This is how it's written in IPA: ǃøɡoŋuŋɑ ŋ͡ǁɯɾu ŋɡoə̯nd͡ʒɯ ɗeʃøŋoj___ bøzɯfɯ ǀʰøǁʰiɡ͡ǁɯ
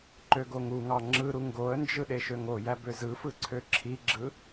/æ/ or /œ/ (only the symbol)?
æ